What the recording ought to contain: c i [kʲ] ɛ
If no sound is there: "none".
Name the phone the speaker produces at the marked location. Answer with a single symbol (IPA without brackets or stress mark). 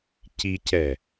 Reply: c